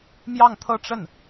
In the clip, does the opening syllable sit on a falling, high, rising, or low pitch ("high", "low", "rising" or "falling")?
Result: falling